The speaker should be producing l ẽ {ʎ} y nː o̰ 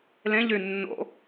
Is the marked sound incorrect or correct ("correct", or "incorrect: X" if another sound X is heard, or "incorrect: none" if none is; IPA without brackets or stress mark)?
correct